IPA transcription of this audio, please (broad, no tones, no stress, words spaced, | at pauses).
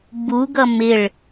buɡʌ mɪɭ